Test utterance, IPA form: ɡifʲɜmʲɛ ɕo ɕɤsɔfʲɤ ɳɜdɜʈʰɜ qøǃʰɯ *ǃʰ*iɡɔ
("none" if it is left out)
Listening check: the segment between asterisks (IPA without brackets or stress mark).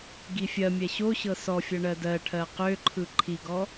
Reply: ǃʰ